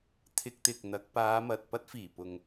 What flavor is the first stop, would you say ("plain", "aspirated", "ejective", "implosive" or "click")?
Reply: aspirated